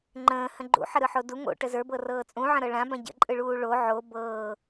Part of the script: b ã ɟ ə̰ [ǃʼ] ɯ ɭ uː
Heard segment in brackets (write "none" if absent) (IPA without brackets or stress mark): ǃʼ